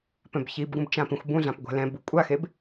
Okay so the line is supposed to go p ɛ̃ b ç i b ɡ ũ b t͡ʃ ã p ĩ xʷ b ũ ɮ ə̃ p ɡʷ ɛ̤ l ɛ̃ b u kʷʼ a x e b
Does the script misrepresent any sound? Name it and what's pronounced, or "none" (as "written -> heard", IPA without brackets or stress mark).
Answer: ə̃ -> ã